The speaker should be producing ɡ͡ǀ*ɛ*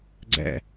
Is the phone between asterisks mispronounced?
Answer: yes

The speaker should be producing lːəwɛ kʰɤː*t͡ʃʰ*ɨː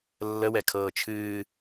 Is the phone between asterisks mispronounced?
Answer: no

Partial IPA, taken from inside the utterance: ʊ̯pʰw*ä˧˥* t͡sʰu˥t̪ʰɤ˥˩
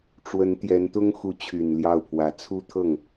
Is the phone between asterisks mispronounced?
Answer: no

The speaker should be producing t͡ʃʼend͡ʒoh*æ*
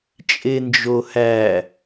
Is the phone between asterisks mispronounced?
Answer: no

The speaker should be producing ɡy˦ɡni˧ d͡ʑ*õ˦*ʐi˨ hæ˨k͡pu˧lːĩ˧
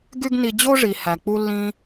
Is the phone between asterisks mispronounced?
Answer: yes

